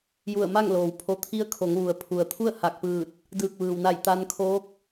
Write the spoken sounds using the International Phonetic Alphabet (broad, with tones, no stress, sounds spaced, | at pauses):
j u˧˩ ə̯ m a˥˨ ŋ l oː˩ w pʰ o˧ t̪ʰ i˥˨ ə̯ kʰ o˩˧ ŋ ʋ u˩ ə̯ pʰ u˩ ə̯ t̪ʰ u˥˨ ə̯ h a˧˩ k̚ p ɯː˧˩ t̚ | d ɯː˧˩ k̚ ʋ ɯː˩ w n a˧˩ j t̪ a˧ n kʰ oː˧˥ k̚